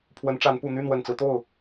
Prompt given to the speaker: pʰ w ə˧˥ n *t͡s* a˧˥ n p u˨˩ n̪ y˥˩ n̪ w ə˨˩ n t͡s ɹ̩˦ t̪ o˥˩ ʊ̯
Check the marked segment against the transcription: incorrect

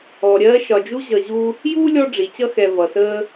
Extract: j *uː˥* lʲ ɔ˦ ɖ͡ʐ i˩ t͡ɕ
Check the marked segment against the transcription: correct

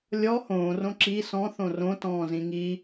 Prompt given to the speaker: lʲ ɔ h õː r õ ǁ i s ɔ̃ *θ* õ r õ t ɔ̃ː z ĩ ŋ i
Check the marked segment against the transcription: correct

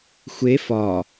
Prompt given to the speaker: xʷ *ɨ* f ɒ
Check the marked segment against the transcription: incorrect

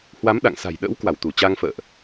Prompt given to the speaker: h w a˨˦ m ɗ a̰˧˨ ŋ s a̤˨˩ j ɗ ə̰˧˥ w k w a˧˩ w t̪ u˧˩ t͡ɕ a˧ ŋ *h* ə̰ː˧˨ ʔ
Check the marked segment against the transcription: incorrect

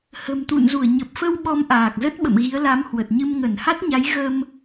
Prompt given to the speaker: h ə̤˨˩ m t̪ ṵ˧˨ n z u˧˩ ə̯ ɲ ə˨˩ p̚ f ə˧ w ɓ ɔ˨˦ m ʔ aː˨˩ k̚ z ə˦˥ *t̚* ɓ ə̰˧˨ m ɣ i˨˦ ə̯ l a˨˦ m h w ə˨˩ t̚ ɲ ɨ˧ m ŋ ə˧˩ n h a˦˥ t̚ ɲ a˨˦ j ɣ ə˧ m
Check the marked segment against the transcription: correct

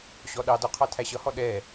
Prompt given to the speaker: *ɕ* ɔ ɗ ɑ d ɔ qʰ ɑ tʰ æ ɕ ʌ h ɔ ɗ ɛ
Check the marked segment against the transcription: correct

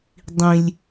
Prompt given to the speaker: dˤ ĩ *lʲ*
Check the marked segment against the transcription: correct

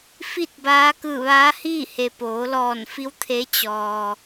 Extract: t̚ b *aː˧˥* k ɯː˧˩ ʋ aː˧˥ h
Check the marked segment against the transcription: correct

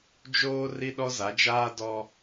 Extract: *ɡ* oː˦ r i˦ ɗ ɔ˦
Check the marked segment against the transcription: incorrect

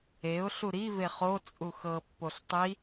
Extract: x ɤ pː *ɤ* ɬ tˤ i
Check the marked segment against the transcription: incorrect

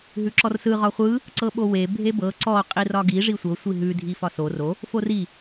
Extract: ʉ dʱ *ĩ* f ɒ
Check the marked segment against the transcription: incorrect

